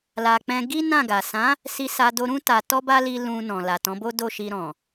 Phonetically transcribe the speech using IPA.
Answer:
l a˧ k͡p ɛ̃˧ ɡ i˦ n ã˦˨ ɡ a˨ s ã˨˦ | s i˧ s a˧ d o˧ ɾ ũ˦ t a˧ t ɔ˦ b a˦ l i˧ l ũ˧ n ɔ̃˨ l a˨ t ɔ̃˨˦ b o˦ d o˦˨ ʃ i˧ ɾ ɔ̃˨

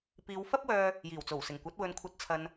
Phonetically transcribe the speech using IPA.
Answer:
p iː˨˧ w f ɐ˥ p̚ w œː˧ | j iː˨˩ w t͡s o˨˩ w s ɪ˨˩ ŋ kʷ ɐ˨˥ t̚ w ɵ˨ n kʷʰ ɐ˨˥ t̚ t͡sʰ ɐ˨ n

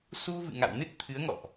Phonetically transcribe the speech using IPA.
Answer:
s u˧ v ɨ̰˧˨ ŋ a̰˧˨ w n ɨ˦˥ t̚ t̪ʰ ɨ˨˦ ə̯ ŋ ɔ̰˧˨ ʔ

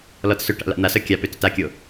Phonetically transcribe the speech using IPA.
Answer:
l ɔ t s ʏ ʈ a̰ l a̰ n̪ a s œ kʲ a p ʏ t ʏ t a kʲ o

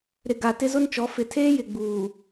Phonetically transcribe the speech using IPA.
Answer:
ɾ ɪ˨ ɡ a˨ t ɪ˦ z ʊ˦ n t͡ʃ ɔ˨˦ f ɪ˨ tʰ eː˦ j ɪ˨ ɡ͡b uː˨

